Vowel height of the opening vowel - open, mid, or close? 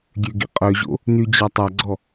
mid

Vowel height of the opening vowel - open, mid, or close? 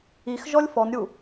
close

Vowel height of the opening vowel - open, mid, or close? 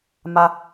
open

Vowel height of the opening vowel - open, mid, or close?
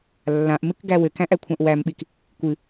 open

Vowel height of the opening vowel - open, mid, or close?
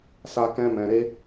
open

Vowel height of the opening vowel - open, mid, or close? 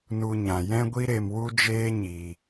close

